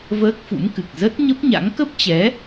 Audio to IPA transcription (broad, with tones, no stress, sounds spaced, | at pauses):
v əː˦˥ k̚ f ṵ˧˥ m k ɨ˨˩ k̚ z ə˦˥ t̚ ɲ ə˦˥ p̚ ɲ a̰˧˥ ŋ k ə˦˥ p̚ t͡ɕ ɛ˨˦